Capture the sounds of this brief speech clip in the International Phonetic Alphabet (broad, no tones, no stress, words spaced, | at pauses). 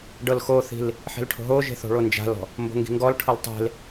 ɖɤlxoθi̤l | ħe̤lʈʰo̤ɦoʒe̤ θo̤ɭond͡ʒa̤lɔ̤ | mbo̤ŋɡi̤ŋɡɔlʈʰɤl tˤe̤l